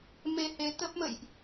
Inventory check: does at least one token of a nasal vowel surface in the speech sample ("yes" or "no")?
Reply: no